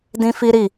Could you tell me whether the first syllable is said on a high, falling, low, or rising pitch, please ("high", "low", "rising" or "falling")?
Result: high